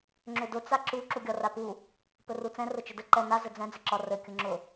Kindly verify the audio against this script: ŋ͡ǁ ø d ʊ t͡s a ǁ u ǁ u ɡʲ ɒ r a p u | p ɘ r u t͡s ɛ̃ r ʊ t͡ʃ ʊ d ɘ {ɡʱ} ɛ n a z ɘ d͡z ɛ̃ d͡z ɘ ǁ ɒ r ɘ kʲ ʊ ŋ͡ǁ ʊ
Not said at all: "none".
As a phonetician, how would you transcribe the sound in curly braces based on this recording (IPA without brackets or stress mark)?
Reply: ǃ